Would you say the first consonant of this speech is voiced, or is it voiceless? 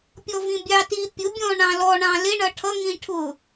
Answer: voiceless